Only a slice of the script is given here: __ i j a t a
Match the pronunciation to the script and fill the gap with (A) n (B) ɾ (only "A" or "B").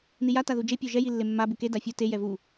A